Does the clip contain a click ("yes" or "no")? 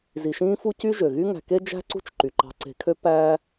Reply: yes